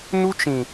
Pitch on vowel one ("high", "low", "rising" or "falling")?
high